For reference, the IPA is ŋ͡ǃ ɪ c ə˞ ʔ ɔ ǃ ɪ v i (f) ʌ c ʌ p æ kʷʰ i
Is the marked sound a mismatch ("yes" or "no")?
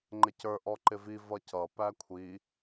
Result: yes